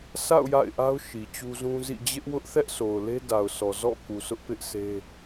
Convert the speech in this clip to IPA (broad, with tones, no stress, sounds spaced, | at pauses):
s a̰˦˨ ʊ̯ j a̰˦˨ ɪ̯ ʔ a˦ ʊ̯ ʃ i˨ t͡ɕ u˦ z ũ˦ z ḭ˦˨ d͡ʑ ɪ˦ ʔ w ʊ˦ ʔ θ ɛ˦ ʔ sʰ o˨ ʊ̯ l e˦ d a˨ ʊ̯ s ɔ˨ z ɔ̰˦˨ k u˨ s ʊ˦ ʔ p ɪ˦ ʔ sʰ e˦